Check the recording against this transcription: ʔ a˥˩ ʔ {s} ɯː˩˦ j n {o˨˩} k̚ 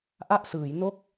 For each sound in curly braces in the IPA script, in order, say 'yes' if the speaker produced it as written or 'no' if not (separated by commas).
yes, no